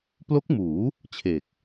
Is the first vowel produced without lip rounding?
no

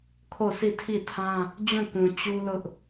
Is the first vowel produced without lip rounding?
no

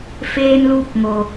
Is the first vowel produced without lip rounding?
yes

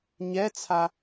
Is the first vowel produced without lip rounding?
yes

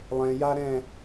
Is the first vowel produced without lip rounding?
yes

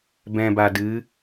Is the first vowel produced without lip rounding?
yes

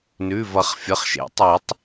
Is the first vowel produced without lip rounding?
no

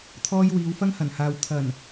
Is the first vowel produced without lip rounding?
no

